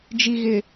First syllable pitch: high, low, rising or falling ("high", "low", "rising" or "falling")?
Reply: low